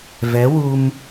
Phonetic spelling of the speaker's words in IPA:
v ɛ˧˥ w u˧ m

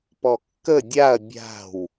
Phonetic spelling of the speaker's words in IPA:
p ɔ kː ə dʲ a ɐ̯ bʲ a̤ w

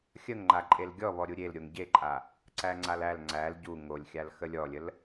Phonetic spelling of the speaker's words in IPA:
xʲ ə ŋ ŋ͡ǃ a ǃʼ e l ɡʲ ɔ β ɔ ɾʲ u ɾʲ e l ɾʲ o ŋ ɟ e ǃʼ a | ǀ æ ŋ͡ǀ a l æ l ŋ͡ǀ æ l ɟ u ŋ o lʲ xʲ a l x ə lʲ ɔ lʲ ə l

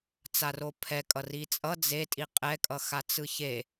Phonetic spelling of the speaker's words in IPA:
t͡s a r o pʰ ɛ kʼ ʌ r i t͡sʼ ʌ d͡z e tʼ i qʼ ɛ kʼ ʌ x a t͡s ɯ ç e

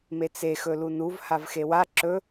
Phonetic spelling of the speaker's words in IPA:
m e t͡s e x ɵ l u n u v h a v x e w a ǁ ɵ

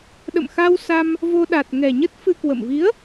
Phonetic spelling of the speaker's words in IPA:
ɗ ə̰˧˨ m x a˧ w s a˧ m | v o˧ ɗ a˨˩ t̚ ŋ ɛ˨˩ ɲ ə˦˥ t̚ f ɨ˧ k w ə̰˧˨ m v i˨˦ ə̯

